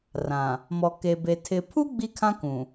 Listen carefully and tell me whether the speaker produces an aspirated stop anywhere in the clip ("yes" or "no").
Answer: yes